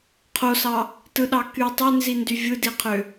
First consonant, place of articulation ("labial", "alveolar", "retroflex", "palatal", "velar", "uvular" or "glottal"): uvular